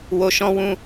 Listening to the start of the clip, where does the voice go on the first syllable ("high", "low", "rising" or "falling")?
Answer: low